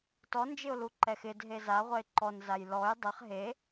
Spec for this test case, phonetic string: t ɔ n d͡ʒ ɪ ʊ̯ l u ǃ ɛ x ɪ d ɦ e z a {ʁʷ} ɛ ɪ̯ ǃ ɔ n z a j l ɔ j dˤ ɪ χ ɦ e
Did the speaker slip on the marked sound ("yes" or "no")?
no